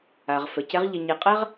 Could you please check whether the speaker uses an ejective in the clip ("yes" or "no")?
yes